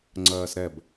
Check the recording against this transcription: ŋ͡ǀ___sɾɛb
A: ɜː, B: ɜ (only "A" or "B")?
A